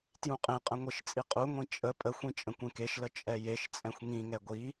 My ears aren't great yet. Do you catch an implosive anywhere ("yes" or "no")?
no